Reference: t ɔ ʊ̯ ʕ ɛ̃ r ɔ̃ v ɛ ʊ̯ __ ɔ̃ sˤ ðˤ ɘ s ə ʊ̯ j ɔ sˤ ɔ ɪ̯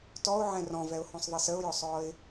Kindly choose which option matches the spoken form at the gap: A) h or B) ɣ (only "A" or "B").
A